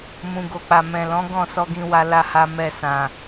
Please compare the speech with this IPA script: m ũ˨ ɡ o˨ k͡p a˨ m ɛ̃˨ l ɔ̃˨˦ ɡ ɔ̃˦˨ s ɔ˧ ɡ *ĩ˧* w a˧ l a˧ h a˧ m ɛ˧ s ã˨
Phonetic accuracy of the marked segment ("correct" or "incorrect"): correct